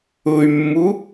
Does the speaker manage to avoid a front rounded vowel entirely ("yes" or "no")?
no